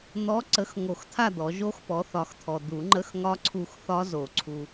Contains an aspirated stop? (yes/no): yes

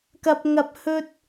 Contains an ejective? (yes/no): no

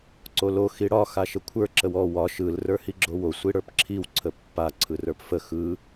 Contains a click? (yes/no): yes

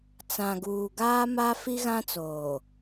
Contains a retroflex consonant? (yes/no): no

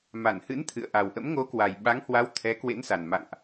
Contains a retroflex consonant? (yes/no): no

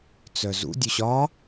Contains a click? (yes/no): no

